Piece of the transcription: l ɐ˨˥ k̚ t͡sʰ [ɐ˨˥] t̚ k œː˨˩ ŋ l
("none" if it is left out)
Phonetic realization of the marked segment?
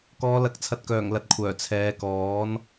ɐ˨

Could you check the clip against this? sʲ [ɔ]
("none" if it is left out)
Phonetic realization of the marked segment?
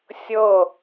ɤ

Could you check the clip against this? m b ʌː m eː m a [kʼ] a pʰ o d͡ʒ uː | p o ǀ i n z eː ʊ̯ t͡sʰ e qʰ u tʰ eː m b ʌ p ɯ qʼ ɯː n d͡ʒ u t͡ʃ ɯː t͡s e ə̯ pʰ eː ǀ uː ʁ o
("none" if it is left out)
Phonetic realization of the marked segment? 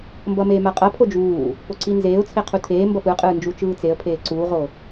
qʼ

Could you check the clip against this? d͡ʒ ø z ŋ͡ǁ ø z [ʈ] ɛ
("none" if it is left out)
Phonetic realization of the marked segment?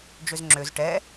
ʈ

